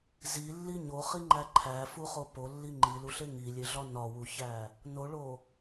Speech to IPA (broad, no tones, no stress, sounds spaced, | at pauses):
z i lː i ɲ o χ i ŋ͡ǃ æ ǃʰ æ f u χ o p o lː i ŋ͡ǃ i l u ɬ e ŋ i lʲ e ɮ ɒ n ɒ w u ç æ | n o ɭ o